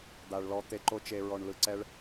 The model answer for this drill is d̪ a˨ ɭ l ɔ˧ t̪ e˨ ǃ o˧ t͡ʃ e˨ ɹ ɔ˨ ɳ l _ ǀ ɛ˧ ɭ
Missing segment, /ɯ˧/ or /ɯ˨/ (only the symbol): ɯ˨